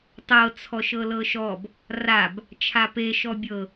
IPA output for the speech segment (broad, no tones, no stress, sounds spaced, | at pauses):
tˤ ɤ t͡sʰ ɔ ʃ ɤ l ɤ ʃ ɔ b | r a b | t͡ʃʰ a p e ʃ ɔ bʲ ɤ